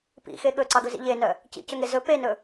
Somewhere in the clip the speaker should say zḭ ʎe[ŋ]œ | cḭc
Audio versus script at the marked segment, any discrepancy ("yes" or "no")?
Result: yes